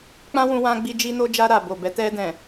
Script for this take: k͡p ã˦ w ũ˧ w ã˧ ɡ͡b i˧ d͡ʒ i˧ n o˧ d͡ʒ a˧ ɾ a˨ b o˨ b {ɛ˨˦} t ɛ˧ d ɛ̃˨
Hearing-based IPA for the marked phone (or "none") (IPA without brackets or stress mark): ɛ˨˦